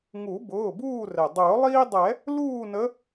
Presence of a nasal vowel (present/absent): absent